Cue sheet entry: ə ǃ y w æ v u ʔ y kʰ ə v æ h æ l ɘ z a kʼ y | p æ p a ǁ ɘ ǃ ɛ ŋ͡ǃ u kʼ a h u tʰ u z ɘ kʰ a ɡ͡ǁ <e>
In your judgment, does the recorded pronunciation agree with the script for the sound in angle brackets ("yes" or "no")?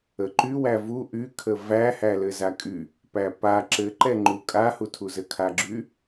no